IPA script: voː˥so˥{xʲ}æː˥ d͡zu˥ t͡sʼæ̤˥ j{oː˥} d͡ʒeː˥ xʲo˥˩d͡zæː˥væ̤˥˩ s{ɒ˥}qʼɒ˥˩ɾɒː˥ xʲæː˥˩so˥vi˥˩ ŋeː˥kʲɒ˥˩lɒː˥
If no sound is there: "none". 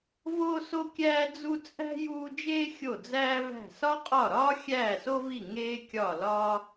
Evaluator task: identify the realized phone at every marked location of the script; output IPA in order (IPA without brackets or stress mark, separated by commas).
kʲ, uː˥, ɒ˥